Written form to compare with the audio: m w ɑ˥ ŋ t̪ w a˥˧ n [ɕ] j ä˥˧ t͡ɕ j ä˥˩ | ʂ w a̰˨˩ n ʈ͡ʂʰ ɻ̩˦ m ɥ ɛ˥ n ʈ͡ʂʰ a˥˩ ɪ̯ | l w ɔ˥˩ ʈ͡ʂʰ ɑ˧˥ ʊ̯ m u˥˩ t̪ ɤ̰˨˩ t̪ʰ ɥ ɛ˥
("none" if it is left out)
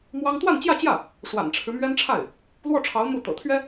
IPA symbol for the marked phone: t͡ɕ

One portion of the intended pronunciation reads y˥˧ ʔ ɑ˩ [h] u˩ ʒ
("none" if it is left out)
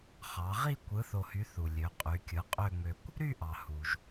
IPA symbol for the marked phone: h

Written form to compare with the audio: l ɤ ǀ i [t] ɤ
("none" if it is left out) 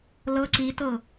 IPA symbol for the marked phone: t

